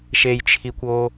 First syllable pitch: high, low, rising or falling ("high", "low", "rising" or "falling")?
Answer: low